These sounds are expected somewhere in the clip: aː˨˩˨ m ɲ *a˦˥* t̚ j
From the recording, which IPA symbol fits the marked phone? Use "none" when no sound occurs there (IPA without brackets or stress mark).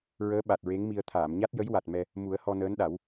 a˦˥